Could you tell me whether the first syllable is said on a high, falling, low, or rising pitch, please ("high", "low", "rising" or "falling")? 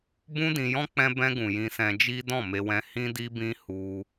high